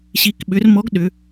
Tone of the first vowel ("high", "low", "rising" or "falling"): rising